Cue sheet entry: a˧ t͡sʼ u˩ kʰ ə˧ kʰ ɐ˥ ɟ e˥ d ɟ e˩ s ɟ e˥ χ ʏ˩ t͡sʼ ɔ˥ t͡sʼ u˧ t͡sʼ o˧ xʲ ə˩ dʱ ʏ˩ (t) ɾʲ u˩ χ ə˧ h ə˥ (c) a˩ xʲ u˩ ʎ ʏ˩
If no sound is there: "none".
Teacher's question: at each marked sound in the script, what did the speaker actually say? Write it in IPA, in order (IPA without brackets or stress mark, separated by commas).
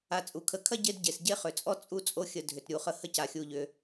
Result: t, c